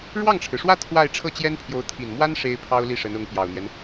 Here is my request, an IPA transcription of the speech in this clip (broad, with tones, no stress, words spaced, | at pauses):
ɻwɑ˥˩ŋʈ͡ʂʰɻ̩˩ʂwä˥˧ t̪ʰwa˥˧ɪ̯ ʈ͡ʂʰɤ˥˩t͡ɕjɛ˥npʰjo˧˥ʊ̯ t̪ʰi˨˩nmwa˥n ʂe˥ɪ̯pʰɑ˥ʊ̯ li˥˩ʂə˧˥nʊ˧˥ŋ pjɑ˨˩ʊ̯n̪jɛ˦n